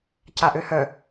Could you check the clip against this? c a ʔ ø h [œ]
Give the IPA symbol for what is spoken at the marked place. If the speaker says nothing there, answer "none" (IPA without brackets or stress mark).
œ